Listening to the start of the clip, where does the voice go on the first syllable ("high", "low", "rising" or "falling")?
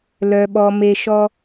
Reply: low